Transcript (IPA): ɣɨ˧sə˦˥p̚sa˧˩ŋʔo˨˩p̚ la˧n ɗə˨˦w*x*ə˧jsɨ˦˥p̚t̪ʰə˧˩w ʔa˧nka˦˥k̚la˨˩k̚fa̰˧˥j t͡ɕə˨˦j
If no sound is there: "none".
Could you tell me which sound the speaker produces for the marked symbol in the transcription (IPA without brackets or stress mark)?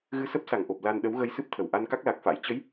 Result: ɣ